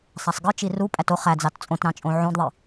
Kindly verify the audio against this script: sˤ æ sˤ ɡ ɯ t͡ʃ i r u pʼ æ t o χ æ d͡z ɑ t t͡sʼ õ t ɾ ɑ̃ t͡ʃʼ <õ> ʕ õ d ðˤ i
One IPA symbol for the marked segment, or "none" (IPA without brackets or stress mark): õ